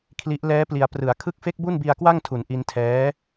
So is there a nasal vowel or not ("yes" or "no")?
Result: no